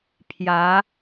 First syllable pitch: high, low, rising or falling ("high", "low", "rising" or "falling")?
rising